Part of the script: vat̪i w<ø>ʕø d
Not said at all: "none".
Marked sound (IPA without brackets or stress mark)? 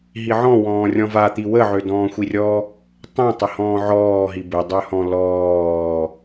ə